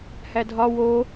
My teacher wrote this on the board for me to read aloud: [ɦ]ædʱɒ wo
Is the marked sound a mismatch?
yes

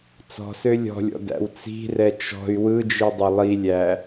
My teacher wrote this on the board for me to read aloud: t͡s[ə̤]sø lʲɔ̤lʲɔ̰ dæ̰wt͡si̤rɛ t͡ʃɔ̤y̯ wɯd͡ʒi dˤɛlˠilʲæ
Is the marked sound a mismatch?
yes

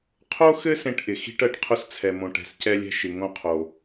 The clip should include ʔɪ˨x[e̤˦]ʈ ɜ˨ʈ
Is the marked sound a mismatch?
yes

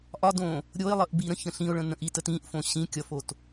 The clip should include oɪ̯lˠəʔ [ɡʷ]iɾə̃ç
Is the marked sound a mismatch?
yes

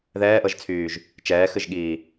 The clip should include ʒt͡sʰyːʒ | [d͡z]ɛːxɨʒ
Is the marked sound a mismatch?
yes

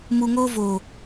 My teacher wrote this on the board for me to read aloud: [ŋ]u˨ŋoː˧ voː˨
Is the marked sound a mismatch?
yes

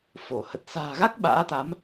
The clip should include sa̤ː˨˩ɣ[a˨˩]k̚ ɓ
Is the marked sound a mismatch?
yes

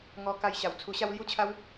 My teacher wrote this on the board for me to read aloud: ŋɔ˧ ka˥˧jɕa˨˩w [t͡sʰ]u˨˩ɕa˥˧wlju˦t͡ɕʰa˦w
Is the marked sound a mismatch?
no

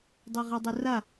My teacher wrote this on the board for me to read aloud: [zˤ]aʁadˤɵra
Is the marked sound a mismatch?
yes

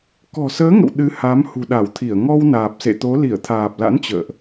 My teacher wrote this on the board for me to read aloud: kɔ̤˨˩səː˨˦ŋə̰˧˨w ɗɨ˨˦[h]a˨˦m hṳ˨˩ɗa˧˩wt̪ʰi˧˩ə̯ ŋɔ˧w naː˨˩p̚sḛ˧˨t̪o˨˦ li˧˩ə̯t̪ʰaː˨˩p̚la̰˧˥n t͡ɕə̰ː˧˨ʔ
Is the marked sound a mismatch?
no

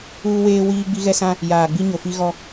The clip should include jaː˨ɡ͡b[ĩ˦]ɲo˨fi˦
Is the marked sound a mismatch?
yes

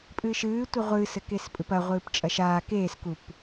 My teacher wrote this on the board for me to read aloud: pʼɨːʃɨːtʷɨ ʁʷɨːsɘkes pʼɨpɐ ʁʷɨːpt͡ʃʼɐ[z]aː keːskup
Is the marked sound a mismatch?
yes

